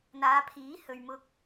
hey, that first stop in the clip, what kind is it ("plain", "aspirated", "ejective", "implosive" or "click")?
aspirated